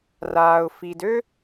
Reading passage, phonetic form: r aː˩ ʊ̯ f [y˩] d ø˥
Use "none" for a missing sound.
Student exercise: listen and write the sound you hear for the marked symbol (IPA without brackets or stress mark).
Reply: i˩